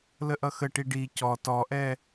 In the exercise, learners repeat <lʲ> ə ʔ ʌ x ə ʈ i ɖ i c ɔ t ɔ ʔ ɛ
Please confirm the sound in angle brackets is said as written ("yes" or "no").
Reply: no